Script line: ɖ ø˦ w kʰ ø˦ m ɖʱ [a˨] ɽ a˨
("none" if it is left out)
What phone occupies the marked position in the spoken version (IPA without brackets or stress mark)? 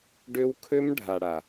a˨